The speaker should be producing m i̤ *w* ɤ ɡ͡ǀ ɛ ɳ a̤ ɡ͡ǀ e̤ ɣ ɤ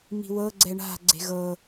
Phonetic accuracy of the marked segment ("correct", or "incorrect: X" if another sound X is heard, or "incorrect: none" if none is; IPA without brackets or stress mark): correct